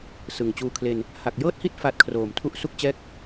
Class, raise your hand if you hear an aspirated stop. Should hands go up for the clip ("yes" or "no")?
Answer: yes